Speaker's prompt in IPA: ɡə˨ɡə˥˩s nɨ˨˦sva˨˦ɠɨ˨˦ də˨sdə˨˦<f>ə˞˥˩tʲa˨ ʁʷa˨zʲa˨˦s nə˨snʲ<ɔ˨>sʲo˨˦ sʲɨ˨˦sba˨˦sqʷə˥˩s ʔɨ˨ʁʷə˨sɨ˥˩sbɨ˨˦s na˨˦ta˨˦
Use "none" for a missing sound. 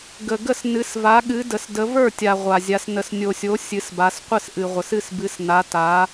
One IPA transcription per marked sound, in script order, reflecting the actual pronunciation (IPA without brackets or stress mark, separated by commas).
v, o˨